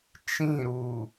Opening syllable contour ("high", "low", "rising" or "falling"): falling